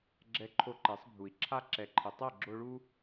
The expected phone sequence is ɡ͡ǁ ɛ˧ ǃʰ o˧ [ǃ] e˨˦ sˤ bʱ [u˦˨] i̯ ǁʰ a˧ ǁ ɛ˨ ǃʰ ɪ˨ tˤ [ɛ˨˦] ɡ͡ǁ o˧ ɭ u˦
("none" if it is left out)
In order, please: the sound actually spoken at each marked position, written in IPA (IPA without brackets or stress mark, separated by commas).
ǃ, u˨, ɛ˦˨